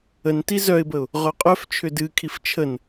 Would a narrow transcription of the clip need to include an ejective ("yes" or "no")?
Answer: yes